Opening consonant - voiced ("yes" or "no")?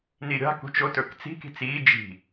yes